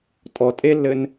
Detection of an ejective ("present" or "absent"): present